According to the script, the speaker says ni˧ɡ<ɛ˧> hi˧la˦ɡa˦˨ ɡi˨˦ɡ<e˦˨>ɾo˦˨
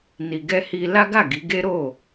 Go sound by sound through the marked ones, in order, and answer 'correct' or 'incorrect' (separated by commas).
incorrect, incorrect